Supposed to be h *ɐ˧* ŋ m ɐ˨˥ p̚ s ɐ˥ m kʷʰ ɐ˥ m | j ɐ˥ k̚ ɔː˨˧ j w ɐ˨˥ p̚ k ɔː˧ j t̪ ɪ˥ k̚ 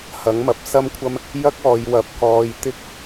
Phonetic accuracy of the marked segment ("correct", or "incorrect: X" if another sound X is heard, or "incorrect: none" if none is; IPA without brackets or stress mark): incorrect: ɐ˨˥